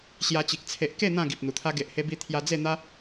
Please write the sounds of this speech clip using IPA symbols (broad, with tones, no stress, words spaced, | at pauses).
ɕja˧t͡ɕi˨k̚ t͡sʰe˨ʔke˥˧ n̪ã˥˧ ɡi˨p̚n̪u˨˩t̪ʰa˦ ɡe˨ʔhe˧bi˧ t̪ʰja˧d͡ze˥˧n̪a˦